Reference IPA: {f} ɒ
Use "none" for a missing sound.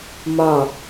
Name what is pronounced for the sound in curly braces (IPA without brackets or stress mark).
m